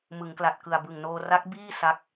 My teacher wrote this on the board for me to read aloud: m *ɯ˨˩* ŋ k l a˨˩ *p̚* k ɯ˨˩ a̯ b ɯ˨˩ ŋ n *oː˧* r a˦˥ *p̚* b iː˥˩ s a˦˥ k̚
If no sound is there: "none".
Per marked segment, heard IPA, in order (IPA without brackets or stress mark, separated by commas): ɯ˩˦, t̚, oː˧, k̚